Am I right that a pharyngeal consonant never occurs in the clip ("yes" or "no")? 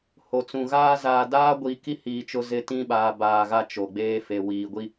yes